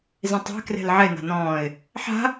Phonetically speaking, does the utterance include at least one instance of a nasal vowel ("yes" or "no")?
yes